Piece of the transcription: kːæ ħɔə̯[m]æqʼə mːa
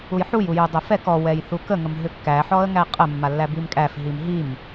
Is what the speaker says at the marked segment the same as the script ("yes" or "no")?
no